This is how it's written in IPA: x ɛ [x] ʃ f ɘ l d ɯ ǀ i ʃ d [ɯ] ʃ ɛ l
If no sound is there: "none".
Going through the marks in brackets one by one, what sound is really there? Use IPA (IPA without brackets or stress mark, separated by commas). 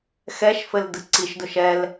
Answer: none, ʊ